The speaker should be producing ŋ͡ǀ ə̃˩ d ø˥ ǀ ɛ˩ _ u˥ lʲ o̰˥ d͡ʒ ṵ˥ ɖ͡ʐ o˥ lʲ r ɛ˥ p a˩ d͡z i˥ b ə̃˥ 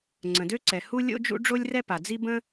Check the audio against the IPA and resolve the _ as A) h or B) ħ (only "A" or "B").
A